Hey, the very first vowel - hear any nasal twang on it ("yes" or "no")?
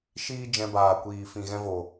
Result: no